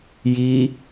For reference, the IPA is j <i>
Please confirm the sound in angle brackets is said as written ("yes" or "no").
yes